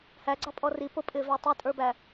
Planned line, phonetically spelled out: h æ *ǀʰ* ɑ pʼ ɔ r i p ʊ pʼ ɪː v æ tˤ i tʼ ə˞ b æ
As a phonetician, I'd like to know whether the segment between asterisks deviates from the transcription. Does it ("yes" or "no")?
yes